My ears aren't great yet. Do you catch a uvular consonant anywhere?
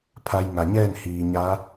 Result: no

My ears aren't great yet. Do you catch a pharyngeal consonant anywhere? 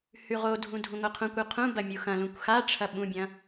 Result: no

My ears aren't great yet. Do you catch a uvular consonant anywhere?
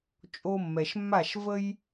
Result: no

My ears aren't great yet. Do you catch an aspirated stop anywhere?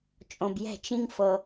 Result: no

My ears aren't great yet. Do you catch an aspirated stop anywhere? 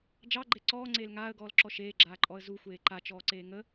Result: no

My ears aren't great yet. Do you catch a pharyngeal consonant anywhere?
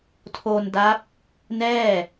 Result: no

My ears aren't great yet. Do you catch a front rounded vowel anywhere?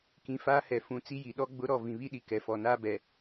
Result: no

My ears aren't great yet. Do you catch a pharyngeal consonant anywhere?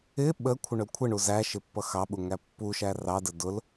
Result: no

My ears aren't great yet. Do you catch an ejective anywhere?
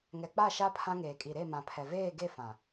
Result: yes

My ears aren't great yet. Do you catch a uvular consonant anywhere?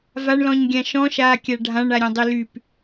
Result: no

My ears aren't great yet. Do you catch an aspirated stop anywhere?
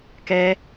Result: no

